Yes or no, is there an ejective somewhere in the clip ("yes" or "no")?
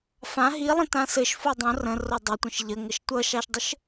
no